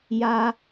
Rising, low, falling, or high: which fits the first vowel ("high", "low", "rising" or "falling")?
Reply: high